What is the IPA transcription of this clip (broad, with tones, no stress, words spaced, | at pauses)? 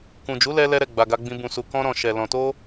kũ˨ d͡ʒu˨˦lɛ˧ lɛ˧ɾɛ˨ ɡ͡ba˨ɡa˧ɡ͡bĩ˧ bũ˨su˨ kɔ̃˧ɾɔ̃˨ ʃɛ˨ lɔ̃˨to˧